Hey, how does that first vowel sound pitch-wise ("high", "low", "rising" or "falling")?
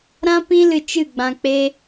high